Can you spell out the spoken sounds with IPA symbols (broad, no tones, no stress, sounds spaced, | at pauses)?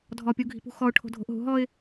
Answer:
dʱ ɔ pʲ u ɡʱ i̤ p ṳ x ɔ ʊ̯ ʈʰ o̤ dʱ o̤ ʔ ɦ ṳ ɦ ɔ ɪ̯